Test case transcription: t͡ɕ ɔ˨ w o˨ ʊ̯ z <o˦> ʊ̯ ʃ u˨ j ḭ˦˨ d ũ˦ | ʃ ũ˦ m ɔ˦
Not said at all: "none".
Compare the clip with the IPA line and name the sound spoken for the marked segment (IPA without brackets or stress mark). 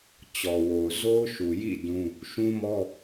o˦